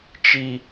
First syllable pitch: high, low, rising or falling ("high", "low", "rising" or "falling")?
high